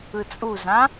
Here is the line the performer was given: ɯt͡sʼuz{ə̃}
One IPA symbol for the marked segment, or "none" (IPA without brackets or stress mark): ã